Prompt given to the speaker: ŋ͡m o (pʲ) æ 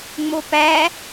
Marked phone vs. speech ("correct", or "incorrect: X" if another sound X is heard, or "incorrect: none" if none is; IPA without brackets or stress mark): incorrect: p